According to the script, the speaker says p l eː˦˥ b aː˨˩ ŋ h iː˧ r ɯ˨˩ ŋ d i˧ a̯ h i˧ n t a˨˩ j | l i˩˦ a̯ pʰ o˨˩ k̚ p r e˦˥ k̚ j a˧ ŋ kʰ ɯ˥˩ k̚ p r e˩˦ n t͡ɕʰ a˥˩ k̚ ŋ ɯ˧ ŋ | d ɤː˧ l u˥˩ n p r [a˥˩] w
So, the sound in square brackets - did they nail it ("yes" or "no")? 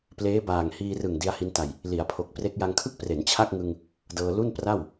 yes